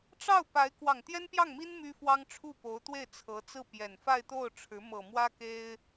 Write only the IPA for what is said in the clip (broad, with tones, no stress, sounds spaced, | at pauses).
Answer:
ʈ͡ʂ ɑ˥˩ ʊ̯ p a˧˥ ɪ̯ k w ɑ˨˩ ŋ t̪ j ɛ˥ n p j ɑ˥˩ ŋ m i˥ n m y˥ f w ɑ˥ ŋ ʈ͡ʂʰ u˥˩ p o˧˥ ʊ̯ t̪ w e˥˩ ɪ̯ t͡sʰ ɤ˧˥ t͡s ɹ̩˥˩ p j ɛ˨˩ n f a˥˧ ɪ̯ t̪ o˥˩ ʊ̯ ʈ͡ʂʰ ɻ̩˧˥ m ɤ˨˩ m w ä˥ k e˥ ɪ̯